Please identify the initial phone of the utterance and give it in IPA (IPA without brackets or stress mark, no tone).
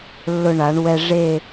lː